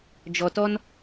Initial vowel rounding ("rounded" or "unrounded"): rounded